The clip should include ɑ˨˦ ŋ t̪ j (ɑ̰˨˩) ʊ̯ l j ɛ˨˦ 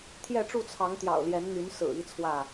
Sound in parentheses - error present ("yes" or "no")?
no